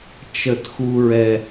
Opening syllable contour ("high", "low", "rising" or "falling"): falling